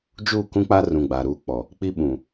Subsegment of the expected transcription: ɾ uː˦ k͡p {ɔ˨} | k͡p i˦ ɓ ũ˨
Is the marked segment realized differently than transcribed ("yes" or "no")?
no